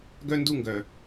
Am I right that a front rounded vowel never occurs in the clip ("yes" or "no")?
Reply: no